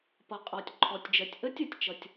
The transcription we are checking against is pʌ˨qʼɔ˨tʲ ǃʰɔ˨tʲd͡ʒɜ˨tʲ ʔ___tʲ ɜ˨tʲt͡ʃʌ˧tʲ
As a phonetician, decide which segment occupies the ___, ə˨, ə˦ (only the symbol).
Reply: ə˦